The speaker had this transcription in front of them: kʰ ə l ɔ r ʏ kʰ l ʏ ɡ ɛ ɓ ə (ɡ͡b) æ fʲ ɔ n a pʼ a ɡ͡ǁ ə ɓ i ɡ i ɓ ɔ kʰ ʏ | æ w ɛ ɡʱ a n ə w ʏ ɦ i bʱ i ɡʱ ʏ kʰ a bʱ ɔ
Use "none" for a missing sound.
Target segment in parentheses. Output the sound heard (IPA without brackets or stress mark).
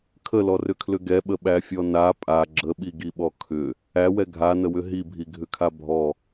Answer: ɓ